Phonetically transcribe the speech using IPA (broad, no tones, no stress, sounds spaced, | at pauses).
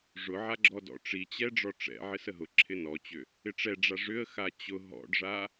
ʐ ʊ ʕ a ɡ͡ǁ ɔ d ɔ̰ ʈ͡ʂ i t͡ɕ ɛ ɖ͡ʐ ɔ ʈ͡ʂ ɛ̰ ʕ ɪ s ə ɦ ʊ ǁʰ ɪ n ɔ t͡ɕ ʏ | ɪ ʈ͡ʂ ɛ ɖ͡ʐ a ʐ ʏ ə̯ x a t͡ɕ ʊ ɦ ɔ̰ ɖ ʐ a